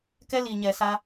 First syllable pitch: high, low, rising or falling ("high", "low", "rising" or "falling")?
high